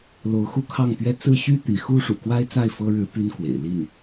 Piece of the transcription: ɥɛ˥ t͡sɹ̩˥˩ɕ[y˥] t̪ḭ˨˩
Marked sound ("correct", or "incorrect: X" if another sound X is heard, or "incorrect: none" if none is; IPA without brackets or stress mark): correct